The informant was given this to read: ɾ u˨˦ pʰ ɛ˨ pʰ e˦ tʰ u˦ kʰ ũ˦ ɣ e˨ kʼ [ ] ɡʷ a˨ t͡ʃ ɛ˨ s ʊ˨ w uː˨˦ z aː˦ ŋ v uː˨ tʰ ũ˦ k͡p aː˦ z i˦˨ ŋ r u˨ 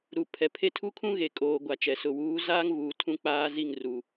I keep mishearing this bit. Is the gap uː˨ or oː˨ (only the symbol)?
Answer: oː˨